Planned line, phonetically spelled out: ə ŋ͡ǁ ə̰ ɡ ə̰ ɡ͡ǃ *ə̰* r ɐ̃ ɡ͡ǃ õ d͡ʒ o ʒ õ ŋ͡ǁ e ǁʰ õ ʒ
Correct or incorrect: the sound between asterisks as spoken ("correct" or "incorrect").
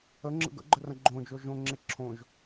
incorrect